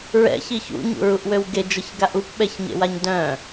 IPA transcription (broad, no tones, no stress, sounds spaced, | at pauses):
ɹ ɛ̰ ç i ç ṵ ɲ ṵ ɹ u ʔ w ø w ɡ e d͡ʒ ə ç ɡ a ʔ u p ɓ ɛ ç ɲ ḛ w a ɲ d œ̃